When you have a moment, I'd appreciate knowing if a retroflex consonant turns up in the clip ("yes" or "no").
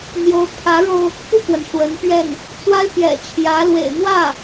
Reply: yes